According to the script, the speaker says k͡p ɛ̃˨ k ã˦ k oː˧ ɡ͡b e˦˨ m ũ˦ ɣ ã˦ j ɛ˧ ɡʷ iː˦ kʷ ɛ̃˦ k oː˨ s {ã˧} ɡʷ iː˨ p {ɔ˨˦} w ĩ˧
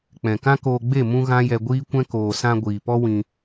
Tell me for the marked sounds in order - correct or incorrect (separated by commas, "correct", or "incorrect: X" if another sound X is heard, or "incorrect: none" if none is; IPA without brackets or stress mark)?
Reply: correct, incorrect: ɔ˦